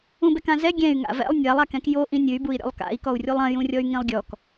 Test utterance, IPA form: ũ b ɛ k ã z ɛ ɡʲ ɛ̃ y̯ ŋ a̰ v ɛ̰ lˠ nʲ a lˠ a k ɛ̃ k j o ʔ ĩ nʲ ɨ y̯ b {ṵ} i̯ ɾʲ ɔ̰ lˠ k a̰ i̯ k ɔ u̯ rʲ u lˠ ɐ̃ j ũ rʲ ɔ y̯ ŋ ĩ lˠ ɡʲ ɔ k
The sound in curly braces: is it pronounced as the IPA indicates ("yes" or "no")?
no